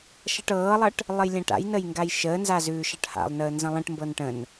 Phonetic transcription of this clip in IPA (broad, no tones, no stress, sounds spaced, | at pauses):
ʃ ʌ ʈ ɤː lˠ ʌ ʈ | lˠ ə j lʲ ã ʈ a̰ j n ə j ŋ ɡ a j ʃ əː n z a z ʉː ʃ ʌ ʈ h a̰ lˠ n əː n z ə̃ lˠ ə̃ ʈ m b ɤ n ʈ ə̃ n